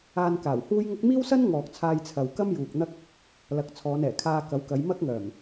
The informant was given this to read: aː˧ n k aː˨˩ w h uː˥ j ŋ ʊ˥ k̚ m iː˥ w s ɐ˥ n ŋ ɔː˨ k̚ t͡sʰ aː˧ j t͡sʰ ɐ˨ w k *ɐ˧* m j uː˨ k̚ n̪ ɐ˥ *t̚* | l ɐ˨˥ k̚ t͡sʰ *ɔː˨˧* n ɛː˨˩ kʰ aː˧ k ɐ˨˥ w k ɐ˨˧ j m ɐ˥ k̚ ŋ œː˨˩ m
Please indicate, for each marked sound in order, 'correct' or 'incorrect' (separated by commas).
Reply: incorrect, incorrect, correct